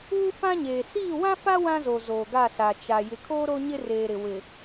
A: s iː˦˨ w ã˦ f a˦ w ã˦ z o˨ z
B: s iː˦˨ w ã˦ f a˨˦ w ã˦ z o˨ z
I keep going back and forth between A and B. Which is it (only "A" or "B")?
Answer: A